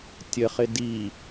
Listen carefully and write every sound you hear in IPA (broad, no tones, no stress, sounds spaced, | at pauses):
tʲ ə χ ɪ d i